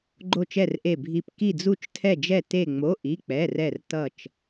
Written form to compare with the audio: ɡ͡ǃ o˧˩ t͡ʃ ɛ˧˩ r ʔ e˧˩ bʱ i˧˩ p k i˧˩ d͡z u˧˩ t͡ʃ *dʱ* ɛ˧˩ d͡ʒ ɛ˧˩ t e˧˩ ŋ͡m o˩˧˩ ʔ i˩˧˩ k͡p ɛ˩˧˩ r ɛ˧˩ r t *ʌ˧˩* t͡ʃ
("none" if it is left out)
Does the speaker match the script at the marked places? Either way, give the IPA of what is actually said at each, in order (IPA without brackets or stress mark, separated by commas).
tʰ, ʌ˧˩